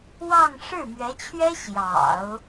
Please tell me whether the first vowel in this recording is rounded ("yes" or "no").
no